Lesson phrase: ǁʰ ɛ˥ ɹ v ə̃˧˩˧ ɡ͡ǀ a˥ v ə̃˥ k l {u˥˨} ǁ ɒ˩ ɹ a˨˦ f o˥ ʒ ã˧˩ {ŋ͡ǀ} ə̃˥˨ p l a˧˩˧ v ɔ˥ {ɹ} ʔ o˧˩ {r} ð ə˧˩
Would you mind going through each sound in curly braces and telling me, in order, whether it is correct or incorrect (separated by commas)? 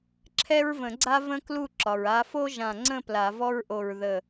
correct, correct, correct, incorrect